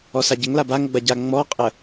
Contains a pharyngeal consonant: no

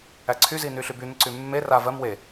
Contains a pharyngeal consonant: no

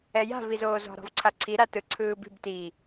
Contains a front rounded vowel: no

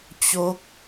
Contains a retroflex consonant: no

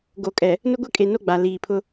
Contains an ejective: yes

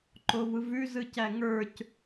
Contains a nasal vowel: no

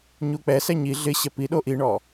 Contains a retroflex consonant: yes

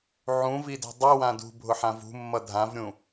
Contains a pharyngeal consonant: yes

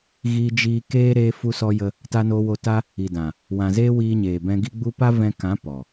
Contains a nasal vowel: yes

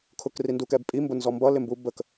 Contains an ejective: yes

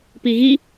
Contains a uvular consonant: no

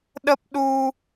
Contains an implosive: yes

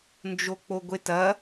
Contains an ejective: no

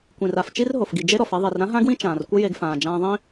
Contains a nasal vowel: yes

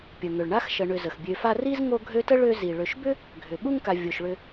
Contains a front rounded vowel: yes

